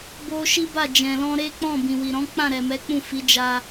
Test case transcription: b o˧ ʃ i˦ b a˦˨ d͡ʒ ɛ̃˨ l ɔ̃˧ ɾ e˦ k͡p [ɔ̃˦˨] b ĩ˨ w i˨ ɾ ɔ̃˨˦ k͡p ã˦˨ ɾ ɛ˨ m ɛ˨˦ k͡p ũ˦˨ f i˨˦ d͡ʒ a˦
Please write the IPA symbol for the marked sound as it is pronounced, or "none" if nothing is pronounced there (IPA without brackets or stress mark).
ɔ̃˦˨